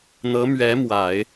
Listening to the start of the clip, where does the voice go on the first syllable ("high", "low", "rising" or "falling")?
rising